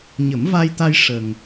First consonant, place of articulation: palatal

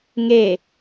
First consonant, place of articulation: velar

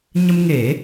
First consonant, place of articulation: palatal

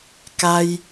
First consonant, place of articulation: velar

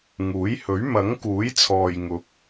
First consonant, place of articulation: velar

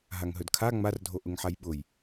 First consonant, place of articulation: glottal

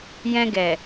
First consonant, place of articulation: palatal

